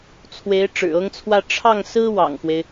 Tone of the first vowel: rising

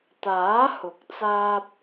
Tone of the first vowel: rising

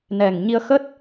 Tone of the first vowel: low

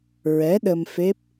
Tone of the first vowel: rising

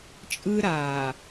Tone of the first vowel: high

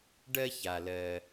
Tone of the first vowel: high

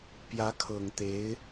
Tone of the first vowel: rising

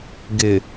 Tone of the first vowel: low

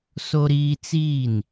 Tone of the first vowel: high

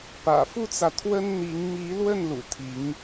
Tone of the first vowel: low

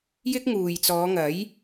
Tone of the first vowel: high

